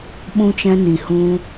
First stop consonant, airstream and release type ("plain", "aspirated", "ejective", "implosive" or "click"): implosive